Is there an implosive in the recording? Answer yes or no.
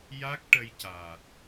no